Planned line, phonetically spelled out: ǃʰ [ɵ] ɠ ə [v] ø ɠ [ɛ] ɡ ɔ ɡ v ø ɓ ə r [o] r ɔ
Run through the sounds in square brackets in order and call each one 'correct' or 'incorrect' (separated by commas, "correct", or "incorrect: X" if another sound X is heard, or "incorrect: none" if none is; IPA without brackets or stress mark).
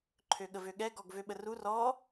incorrect: ø, correct, correct, incorrect: u